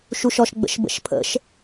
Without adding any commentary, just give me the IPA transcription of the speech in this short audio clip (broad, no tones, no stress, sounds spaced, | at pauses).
ʃ u ʃ ɔ ʃ ɡ͡b ə̰ ʃ b ə̰ ʃ pʰ ə̰ ʃ